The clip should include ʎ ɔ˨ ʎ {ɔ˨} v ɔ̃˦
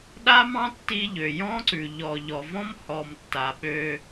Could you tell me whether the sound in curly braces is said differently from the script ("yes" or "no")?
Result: no